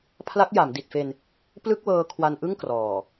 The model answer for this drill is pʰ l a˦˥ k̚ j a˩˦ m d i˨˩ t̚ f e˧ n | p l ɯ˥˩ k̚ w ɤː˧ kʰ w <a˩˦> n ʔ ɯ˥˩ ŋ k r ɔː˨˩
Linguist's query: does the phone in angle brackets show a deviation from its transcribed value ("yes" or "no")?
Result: yes